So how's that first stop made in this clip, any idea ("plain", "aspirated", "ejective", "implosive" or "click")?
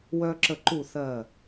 click